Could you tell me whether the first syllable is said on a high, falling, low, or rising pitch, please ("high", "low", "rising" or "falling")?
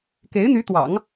rising